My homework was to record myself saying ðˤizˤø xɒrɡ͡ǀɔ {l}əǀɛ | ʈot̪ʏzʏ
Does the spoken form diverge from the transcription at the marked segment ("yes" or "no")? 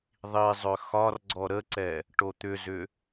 yes